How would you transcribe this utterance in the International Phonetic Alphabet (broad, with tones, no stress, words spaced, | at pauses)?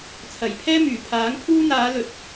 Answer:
t͡sʰɐ˨˩jpʰɛː˥myː˨˩ pʰaː˨˥ŋpʰuː˥ n̪aː˨˧lɵ˨˥t̚